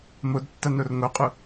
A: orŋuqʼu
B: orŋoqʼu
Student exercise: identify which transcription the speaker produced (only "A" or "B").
B